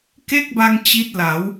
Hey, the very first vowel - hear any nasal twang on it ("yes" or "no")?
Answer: no